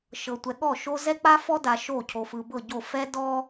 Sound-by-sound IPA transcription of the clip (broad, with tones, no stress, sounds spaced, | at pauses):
ʃ ɤ˨ tʷ ɛ˨ ɠ ɔ˦˨ ʃ o˦ z ɛ˦ k͡p a˦ f ɔ˦ d a˨ ʃ o˦˨ cʰ o˨ f ɯ˨ b ɤ˦˨ ɟ o˦˨ f ɛ˦ d ɔ˦